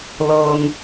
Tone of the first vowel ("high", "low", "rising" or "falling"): low